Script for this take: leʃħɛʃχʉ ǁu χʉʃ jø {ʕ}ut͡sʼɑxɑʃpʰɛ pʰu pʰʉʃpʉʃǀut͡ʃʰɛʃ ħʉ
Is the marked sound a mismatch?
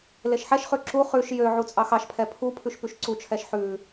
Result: no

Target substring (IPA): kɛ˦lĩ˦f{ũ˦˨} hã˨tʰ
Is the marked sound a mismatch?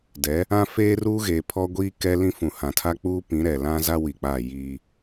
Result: yes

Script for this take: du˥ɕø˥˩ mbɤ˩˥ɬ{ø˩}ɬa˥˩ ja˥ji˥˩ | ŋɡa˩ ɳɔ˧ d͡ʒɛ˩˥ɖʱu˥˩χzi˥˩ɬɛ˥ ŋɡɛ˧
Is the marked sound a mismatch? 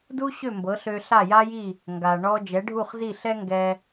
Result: yes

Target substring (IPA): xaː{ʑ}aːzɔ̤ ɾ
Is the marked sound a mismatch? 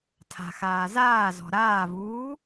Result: yes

